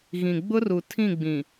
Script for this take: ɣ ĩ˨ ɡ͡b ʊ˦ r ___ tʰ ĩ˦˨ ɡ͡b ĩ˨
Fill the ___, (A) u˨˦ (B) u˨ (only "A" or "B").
B